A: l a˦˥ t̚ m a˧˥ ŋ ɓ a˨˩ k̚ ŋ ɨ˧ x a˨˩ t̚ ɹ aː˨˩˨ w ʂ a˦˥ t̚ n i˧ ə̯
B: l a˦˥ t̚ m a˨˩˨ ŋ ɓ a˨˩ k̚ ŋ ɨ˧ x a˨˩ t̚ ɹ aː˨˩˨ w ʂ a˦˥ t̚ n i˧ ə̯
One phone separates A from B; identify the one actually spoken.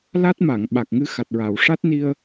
B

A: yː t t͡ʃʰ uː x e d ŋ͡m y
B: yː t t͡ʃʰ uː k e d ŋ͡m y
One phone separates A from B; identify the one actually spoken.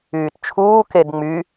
B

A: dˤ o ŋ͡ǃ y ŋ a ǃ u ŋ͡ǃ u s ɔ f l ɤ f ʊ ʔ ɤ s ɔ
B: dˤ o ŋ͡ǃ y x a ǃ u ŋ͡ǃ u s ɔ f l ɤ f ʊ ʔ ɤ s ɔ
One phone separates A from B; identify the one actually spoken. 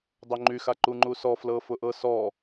B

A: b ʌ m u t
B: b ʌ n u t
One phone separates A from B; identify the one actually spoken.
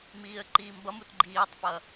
A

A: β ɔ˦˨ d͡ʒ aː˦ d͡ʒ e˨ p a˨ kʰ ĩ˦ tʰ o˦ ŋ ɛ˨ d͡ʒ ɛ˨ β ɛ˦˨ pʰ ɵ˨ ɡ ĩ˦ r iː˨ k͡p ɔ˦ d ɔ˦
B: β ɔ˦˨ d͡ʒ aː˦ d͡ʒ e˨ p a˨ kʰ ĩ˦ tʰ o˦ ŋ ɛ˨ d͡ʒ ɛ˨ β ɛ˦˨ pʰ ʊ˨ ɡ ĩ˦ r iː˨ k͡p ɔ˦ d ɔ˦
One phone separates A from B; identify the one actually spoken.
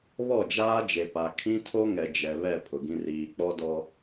B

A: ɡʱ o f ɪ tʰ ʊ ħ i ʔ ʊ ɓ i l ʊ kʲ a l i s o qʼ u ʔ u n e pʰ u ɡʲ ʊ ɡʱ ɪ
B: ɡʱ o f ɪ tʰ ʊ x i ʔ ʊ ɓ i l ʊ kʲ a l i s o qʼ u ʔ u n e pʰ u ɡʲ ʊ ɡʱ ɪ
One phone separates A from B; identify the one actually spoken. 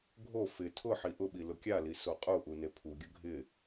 A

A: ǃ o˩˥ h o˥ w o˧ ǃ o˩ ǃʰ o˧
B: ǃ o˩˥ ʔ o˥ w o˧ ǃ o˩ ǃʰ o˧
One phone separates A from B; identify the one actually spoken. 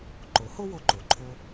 A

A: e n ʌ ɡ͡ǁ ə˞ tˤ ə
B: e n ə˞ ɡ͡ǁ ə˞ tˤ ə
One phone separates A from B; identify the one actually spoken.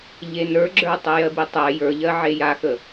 B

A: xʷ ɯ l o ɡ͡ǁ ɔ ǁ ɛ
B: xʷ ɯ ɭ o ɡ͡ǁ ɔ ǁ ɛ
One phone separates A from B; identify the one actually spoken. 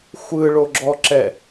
B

